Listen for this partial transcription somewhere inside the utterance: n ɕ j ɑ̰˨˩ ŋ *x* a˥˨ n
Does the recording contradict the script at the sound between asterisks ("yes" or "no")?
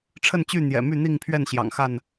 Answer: no